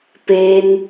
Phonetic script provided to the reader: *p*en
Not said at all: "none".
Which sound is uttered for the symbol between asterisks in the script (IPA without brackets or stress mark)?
p